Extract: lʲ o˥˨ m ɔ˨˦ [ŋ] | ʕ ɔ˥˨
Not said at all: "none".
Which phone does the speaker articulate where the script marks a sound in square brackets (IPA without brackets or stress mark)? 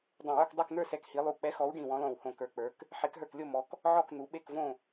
k